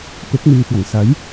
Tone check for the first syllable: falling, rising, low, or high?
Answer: rising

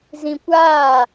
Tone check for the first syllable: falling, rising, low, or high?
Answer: low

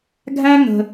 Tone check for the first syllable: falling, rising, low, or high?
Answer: high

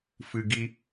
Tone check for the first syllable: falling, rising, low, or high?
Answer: low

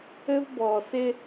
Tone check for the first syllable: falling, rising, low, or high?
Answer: high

